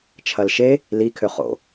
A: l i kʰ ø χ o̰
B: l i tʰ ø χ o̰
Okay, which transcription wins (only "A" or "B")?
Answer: A